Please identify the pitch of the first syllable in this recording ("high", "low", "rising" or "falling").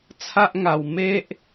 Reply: high